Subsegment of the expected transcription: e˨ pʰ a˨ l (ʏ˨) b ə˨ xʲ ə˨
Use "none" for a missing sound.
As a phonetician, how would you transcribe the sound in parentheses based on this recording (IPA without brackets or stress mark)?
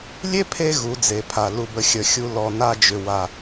u˨